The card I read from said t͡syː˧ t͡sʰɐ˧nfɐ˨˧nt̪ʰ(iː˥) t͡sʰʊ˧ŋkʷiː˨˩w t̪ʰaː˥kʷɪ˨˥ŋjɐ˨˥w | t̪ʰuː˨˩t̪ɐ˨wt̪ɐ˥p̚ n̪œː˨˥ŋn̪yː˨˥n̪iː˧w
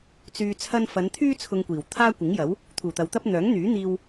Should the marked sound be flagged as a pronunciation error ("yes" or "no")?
yes